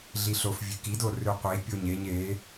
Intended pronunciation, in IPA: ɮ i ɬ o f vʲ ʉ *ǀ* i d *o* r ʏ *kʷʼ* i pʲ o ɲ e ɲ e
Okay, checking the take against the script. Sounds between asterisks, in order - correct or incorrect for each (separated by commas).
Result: incorrect, correct, incorrect